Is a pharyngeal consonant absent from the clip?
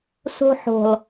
no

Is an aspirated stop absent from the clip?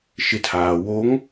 no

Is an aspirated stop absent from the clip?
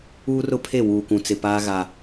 no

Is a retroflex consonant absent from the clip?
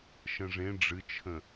no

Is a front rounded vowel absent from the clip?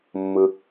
yes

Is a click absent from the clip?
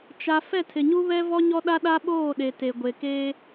yes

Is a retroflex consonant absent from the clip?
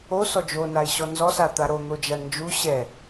no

